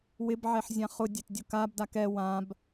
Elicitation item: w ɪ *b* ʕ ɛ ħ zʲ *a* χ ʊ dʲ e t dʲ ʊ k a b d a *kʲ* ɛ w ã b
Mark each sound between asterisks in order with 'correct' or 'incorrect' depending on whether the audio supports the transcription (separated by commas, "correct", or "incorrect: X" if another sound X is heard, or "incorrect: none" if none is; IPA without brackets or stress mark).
correct, incorrect: ã, incorrect: k